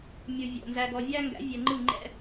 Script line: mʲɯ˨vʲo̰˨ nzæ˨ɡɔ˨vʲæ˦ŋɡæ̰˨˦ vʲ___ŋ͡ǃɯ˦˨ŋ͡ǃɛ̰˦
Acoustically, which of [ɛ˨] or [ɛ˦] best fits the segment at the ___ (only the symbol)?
ɛ˨